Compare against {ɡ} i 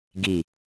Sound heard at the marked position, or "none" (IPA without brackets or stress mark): ɡ